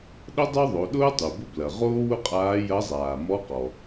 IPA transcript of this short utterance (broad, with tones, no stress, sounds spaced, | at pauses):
ɗ ə˥ dˤ o˥ ðˤ o˩˧ ɗ ʊː˥ tˤ u˩ b ʊ˥ b l ɐ˩ ʁ oː˥ w ʊ˥ qʼ aː˧˥ j ɐ˧˥ zˤ aː˩ m ɔ˧˥ q ɔ˩